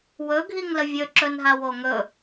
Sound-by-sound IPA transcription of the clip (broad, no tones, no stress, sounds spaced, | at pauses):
w ɵ ɡʱ i ŋ l ə vʲ ɵ ǁ ɵ n ɦ a w o ŋ ɵ